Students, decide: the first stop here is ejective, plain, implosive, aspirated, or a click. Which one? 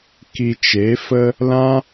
plain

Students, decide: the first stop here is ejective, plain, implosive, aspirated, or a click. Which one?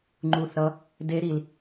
click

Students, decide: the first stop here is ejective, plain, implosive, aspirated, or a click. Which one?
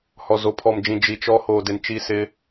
aspirated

